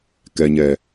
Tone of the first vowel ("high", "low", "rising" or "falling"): low